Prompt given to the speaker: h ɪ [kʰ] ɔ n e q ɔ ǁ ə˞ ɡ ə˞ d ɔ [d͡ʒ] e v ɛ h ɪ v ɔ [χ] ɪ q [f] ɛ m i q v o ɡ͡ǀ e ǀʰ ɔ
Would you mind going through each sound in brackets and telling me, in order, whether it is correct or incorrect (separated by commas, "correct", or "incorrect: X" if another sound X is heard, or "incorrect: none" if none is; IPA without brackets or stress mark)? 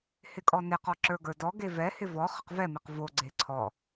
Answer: incorrect: kʼ, incorrect: ɡ, correct, incorrect: v